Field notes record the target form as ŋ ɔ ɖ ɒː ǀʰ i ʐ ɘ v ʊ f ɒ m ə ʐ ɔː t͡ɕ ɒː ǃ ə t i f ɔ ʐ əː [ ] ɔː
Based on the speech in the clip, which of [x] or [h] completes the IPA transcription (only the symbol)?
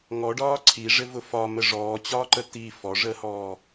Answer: h